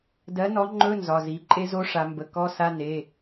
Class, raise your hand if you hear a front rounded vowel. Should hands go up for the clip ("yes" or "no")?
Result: no